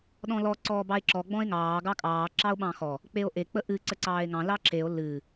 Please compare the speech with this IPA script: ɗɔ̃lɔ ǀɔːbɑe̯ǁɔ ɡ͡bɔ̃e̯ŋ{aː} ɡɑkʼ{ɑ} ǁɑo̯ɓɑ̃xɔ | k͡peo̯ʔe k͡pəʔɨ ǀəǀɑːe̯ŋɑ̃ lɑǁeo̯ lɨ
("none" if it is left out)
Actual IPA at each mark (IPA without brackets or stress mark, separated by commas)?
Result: ɑː, ɑː